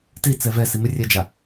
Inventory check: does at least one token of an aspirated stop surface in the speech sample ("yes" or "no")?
no